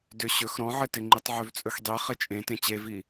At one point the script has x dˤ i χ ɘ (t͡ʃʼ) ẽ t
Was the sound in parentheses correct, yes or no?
yes